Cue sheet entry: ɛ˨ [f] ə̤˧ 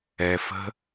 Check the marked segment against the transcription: correct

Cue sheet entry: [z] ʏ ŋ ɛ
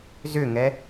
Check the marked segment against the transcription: correct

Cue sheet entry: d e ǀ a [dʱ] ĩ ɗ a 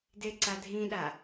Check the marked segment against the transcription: correct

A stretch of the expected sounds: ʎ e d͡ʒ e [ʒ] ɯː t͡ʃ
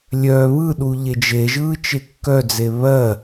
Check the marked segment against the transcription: correct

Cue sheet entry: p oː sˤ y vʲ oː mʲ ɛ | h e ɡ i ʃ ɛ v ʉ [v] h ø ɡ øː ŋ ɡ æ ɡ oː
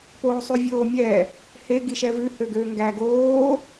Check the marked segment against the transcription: incorrect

